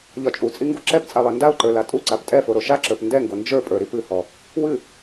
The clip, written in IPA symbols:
ʎ ɒ t͡ʃʼ u t͡sʼ i ŋ ɡ u ǁ ɛ p t͡sʼ a lˠ ɛ n d a ʊ̯ ǃ ə˞ l a tʼ u ǀ a p tʼ ɛ f o ɾ o ʃ a ǁ ə˞ p n d ɛ ŋ ɡ o n d͡ʒ ə˞ pʼ ə˞ ɾ i p ɨ h ɔ | w ɨ

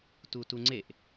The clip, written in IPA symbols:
t u t u ŋ͡ǀ e ʔ

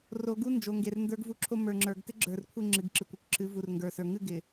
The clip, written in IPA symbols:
r o˨ ɡ u˦ n d͡ʒ o˨ ŋ ɡ e˨ r n d ə˞˦ ɡ v u˦ ǁʰ o˦ m ə˞˨ ŋ͡ǁ ə˞˨ ɡ t ɪ˦ ɡ͡ǁ ə˞˨ r kʷʰ ɪ˦˨ ŋ͡ǁ ɨ˨ ɡ ǁ ɨ˨ kʷ ɪ˦˨ kʷ ǁʰ ɨ˨˦ v u˨ r ŋ ɡ ə˞˨ s ə˞˨ ŋ ɨ˦˨ ɡ ɪ˨

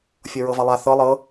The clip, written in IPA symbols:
fʲ ɤ ɹ ɤ v a lˠ a θ ɤ lˠ ɤ

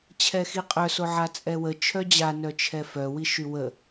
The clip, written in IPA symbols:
t͡ɕʰ ɛ x i qʼ œ s o ʕ a t͡sʼ ɛ w ə t͡ʃʰ œ d͡ʑ a n œ t͡ʃʰ ɛ f œ w i ʃ y w ə

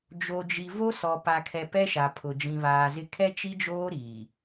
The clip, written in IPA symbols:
d͡ʒ o˨ d͡ʒ i˨ v o˦ s ɔ˨ p a˨ kʰ ɛ˨ p ɛ˦ ʃ a˨ pʰ ʊ˨ d͡ʒ ĩ˨ β aː˨ z ɪ˦ kʰ ɛ˦ t͡ʃ i˦ d͡ʒ oː˦ ɾ iː˨

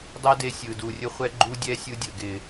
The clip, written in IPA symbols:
dˤ ɛ˦ d e˧ sʲ ɯ˨ d u˨ rʲ ə˦ χʷ ɛ˦ ɡ͡ǃ u˦ dʲ ɛ˦ sʲ ɯ˧ dʲ ə˨ ɡ ɪ˨

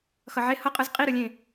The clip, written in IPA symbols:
x ʌ ʕ e h ʌ qʼ ɯ z qʼ i ɾ ɯ lʲ ẽ

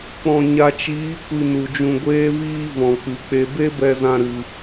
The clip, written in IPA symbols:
k͡p ɔ̃˨ ɲ a˨ t͡ʃ iː˨˦ kʷ i˧ n u˨ d͡ʒ ũ˧ ɡʷ eː˦ v iː˦ v ɔ̃˨ k͡p ɨ˨ k͡p e˧ b e˦ b ɛ˧ z ã˧ ɾ ɨ˧

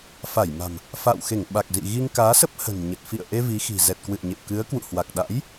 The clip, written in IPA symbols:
f a˧˩ j m a̤˨˩ m | f a̰ː˧˨ w x e˧˩ ŋ ɓ a˨˩ k̚ z ḭ˧˨ ɣ i˧ ŋ k aː˨˦ s ə˦˥ p̚ h ə̤˨˩ n ɲ ə˨˩ t̚ f ḭ˧˨ ə̯ ʔ e˧ v i˨˦ x i̤˨˩ z ɛ˨˩ t̚ k w ɨ̰˧˨ ə̯ ɲ ḛ˧˨ w k ɨ˨˦ ə̯ k w ṵ˧˨ h w a˨˩ k̚ ɗ a̰˧˥ j

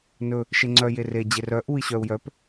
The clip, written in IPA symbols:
n ɵ | ʃ e ŋ͡ǀ œ j e r e d͡ʑ e r œ ʔ u i̯ ɕ œ u̯ j œ p

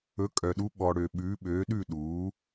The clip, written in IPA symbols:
ɵ˩˥ kʼ œ˩ ɗ u˩˥ ɓ ɔ˩ ɽ ø˩ ɓ ʉː˩˥ ɓ øː˩˥ ɗ ʉ˥˨ ɗ uː˩˥

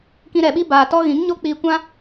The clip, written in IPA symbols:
k ĩ˧ ɾ ɛ˨ ɓ i˦ b aː˨ t ɔ˦ ɣ ĩ˨˦ ŋ ɲ o˦ k͡p iː˧ kʷ ã˦

